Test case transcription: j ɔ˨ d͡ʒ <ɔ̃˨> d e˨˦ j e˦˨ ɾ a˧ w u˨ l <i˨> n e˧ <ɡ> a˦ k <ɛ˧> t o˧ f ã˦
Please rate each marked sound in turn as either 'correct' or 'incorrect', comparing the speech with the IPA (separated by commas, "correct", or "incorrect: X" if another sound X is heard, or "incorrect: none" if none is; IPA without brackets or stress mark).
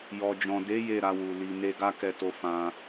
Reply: correct, correct, correct, correct